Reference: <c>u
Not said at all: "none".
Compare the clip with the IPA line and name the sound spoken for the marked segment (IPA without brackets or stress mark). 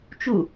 t͡ʃ